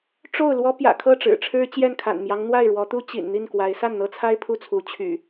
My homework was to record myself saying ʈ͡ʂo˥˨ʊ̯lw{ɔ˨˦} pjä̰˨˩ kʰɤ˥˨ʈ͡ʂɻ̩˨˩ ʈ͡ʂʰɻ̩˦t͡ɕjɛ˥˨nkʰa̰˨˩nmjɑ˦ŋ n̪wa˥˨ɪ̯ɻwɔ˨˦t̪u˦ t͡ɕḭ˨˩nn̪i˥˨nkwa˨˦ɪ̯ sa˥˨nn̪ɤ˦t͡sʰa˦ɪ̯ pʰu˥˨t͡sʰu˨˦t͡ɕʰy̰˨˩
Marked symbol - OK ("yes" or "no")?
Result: no